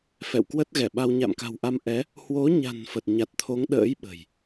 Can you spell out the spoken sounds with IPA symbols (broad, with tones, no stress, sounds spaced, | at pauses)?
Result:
f ɛ̰˧˨ w k w ə˦˥ t̚ ɣ ɛ˧˩ ɓ a˧ w ɲ a̰˧˨ m k a̤˨˩ w ʔ a˧ m ʔ ɛ˨˦ | h w o˨˦ ɲ a̤˨˩ n f ə˨˩ t̚ ɲ a˨˩ t̚ t̪ʰ o˨˦ ŋ ɗ ə̰ː˧˥ j ɓ ə̤˨˩ j